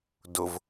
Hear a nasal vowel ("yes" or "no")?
no